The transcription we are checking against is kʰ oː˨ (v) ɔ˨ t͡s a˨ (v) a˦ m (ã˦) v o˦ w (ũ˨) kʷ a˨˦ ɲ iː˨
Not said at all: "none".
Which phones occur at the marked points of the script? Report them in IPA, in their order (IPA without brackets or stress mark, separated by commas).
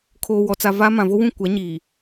w, v, ã˨, ũ˦˨